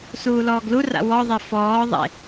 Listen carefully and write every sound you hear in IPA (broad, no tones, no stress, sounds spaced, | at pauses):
s uː l ɔː ɡ l u r a̰ w ɔ ðˤ ɛ f ɔː ðˤ ḛ